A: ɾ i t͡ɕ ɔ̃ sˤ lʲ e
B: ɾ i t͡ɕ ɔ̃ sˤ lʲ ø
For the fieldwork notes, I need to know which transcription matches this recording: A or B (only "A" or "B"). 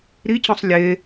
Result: A